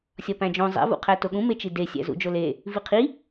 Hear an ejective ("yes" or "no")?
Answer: no